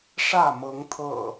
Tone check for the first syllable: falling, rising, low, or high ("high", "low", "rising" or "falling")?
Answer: falling